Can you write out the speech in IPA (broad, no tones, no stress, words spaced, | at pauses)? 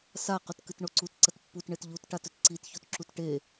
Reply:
saqɵt kɨtɳoǀut ǀɐtpːutɳet ʎutʈatɵt ǀitçotǁut ʈe